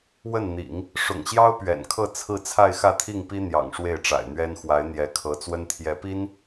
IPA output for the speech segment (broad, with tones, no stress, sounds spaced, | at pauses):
w ə˥˩ n n̪ ḭ˨˩˦ ŋ | ʂ ʊ̰˨˩ ŋ ɕ j ɑ˥ ʊ̯ p ɥ ɛ̰˨˩ n kʰ ɤ˥˧ t͡sʰ ɹ̩˥˧ t͡sʰ a˥˧ ɪ̯ x ä˥˧ t̪ʰ i˥˩ ŋ p i˥ n̪ j ɑ̰˨˩ ŋ ʂ w e˥˩ ɪ̯ ʈ͡ʂ a̰˨˩ ɪ̯ n̪ ɥ ɛ˥ n x w a˧˥ ɪ̯ n̪ j ɛ˧˥ kʰ ɤ˧˥ t͡s w ə˥ n t̪ʰ j ɛ˧˥ p i˥ n